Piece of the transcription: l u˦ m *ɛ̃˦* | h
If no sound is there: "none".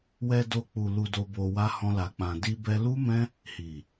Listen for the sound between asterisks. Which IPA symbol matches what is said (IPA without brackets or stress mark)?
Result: ɛ̃˦